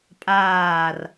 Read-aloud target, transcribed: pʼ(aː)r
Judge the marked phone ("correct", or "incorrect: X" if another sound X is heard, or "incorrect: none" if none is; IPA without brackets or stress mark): correct